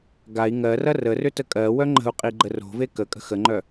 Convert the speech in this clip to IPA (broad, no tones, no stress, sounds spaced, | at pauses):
ɡ a i̯ ŋ ɜ r ɐ r ə r ʏ t ə kʼ ɜ w œ ŋ͡ǃ ə̤ u̯ qʼ i ɡ͡ǃ ə r o̤ v e k ə kʼ ə̤ x ə ŋ͡ǃ œ